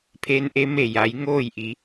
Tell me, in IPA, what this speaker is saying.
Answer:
pʰ e˧˥ n ʔ e˧˥ m e˧˩ j a˩˧ j ŋ oː˥˨ j ʔ i˩˧

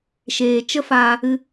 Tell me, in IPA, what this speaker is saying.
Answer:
ʃ eː˨ t͡ʃ ə˦ f aː˧ | ɨ˧

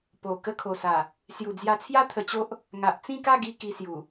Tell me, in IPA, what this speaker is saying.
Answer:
p o˨˩ k ə˧ kʰ o˨˩ s a˨˩ | s j u˨˩ d͡z j a˧ t͡sʰ j a˦ t̪ʰ ə˧ t͡ɕ o˦ ʔ | ŋ a˨ ʔ t͡s ĩ˥˧ k a˥˧ ɡ i˧ k i˧ s j u˨˩

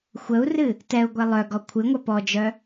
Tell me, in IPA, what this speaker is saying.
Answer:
xʷ ə u̯ r ɨ | t ɛ u̯ ɡʷ ɛ lˠ œ ɡ ɔ kʷʰ ɨ ŋʷ œ p ɔ d͡ʒ œ

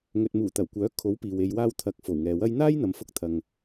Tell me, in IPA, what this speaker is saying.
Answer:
ŋ ɵ˨ t̚ m uː˨˩ t̪ ɐ˨˩ w kʷ œː˨˥ kʰ o˨˥ w p iː˨ w e˧ j w aː˥ w t̪ʰ ɐ˧ k̚ f o˨˩ w ŋ ɛː˨ w ɐ˥ j n̪ aː˥ j n̪ ɐ˨ m f ʊ˧ k̚ t̪ʰ ɐ˨ ŋ

